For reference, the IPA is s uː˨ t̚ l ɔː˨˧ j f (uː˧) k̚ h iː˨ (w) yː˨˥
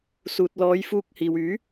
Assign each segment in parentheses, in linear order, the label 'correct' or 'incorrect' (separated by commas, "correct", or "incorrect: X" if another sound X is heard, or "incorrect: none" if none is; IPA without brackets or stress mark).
correct, correct